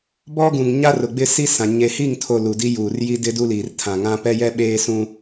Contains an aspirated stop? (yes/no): yes